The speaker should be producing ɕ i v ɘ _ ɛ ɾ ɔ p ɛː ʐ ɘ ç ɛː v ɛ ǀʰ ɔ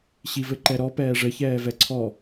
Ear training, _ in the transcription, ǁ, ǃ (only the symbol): ǃ